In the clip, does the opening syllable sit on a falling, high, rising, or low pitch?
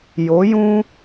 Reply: rising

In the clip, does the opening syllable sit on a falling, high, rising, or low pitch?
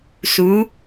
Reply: rising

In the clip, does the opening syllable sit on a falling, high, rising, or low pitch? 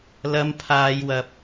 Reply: high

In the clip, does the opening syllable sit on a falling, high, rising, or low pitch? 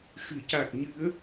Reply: low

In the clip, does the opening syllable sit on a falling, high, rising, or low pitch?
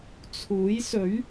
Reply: rising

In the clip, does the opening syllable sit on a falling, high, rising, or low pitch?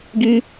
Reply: high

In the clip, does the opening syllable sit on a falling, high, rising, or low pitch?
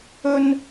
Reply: high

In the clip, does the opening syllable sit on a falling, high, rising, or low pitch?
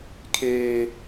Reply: low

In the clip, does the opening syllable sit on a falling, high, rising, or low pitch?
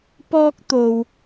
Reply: high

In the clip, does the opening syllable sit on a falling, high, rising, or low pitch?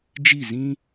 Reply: falling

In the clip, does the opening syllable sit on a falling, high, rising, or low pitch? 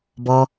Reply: low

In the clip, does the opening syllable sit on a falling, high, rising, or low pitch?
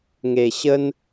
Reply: low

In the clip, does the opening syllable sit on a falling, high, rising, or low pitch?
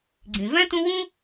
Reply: low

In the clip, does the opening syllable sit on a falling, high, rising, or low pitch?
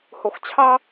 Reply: low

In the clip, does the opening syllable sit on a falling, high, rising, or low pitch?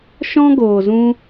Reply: high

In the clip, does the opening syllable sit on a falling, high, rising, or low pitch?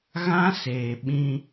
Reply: high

